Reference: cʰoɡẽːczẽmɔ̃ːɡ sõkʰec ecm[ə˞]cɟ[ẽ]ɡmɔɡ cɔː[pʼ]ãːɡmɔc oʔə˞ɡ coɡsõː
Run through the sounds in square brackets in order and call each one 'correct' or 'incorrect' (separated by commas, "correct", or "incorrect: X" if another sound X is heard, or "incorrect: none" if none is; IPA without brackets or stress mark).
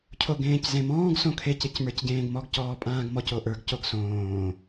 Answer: correct, incorrect: ẽː, correct